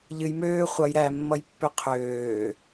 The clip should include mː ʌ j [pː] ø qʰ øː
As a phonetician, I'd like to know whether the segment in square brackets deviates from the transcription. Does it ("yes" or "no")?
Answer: no